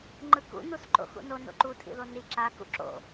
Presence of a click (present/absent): present